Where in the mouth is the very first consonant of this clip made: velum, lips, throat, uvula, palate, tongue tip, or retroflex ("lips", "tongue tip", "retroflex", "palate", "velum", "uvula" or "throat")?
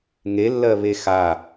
velum